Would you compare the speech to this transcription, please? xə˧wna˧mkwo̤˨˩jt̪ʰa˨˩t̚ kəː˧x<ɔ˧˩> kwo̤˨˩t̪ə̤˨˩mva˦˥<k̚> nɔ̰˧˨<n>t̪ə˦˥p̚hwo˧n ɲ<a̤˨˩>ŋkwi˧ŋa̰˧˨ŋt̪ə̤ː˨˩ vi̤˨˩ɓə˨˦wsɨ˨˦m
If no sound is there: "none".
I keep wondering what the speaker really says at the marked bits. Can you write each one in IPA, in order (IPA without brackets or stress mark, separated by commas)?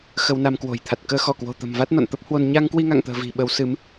ɔ˧˩, t̚, n, a˧